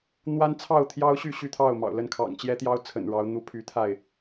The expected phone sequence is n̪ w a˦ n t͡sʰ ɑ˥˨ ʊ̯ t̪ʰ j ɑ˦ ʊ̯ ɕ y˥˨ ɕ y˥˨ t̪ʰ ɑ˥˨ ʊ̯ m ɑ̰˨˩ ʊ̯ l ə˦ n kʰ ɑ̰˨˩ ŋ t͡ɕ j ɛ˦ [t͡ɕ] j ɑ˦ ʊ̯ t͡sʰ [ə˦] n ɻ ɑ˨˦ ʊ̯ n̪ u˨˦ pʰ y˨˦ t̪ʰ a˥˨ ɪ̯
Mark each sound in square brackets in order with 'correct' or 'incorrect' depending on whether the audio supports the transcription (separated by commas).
incorrect, incorrect